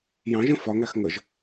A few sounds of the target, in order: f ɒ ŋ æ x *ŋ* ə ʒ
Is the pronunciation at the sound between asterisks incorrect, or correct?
correct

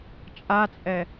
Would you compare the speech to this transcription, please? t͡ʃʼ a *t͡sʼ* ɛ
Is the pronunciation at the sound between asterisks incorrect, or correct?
correct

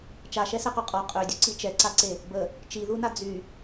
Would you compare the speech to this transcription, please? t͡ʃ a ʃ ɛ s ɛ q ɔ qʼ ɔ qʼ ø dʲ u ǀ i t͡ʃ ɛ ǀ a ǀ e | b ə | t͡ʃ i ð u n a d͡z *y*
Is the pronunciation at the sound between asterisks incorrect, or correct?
correct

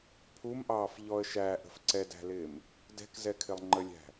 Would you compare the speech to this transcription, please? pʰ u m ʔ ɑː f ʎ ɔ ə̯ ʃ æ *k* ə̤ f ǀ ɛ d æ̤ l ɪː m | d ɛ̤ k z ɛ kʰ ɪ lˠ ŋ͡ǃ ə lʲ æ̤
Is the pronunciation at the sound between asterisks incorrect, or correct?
incorrect: ʔ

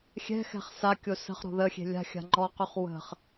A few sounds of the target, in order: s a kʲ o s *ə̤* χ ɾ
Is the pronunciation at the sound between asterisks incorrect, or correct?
correct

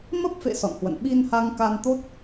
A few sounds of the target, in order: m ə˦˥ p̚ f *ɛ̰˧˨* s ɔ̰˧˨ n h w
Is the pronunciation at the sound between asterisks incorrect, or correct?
incorrect: ḛ˧˨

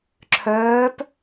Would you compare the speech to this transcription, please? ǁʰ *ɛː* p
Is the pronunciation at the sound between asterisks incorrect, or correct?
incorrect: œː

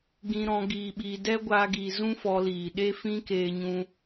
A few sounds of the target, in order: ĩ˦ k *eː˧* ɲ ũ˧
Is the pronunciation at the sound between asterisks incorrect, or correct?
correct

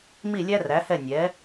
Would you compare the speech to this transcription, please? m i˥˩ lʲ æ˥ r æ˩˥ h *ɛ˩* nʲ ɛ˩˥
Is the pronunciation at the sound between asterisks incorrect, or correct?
incorrect: ɛ˥˩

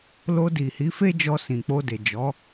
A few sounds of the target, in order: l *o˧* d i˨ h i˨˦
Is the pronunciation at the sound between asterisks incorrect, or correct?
correct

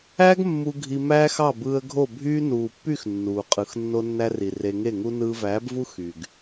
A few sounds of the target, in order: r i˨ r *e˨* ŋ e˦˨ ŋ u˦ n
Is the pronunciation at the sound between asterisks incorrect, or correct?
incorrect: e˧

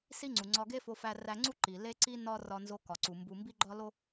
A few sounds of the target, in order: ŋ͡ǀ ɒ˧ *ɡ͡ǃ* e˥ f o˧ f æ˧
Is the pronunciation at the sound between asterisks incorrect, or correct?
incorrect: ɡ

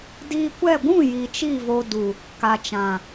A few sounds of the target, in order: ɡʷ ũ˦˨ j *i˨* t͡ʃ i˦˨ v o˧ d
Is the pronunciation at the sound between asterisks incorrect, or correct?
correct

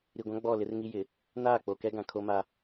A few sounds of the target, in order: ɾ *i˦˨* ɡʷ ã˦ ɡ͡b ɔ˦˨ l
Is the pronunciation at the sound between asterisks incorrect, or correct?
incorrect: i˨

